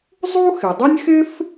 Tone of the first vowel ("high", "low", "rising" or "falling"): high